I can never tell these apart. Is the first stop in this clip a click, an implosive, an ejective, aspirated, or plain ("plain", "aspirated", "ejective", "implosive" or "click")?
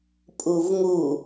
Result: ejective